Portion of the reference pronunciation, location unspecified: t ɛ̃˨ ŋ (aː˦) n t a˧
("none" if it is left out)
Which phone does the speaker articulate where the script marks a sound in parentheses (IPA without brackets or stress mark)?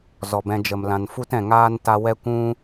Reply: aː˦